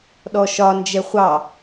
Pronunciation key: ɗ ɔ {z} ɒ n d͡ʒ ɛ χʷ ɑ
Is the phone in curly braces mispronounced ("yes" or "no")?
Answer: yes